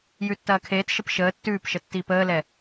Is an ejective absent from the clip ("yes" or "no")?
yes